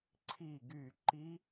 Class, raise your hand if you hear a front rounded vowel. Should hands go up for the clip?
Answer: yes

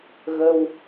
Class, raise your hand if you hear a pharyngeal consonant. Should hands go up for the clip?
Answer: no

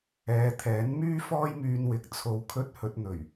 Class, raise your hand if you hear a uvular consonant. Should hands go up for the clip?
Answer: no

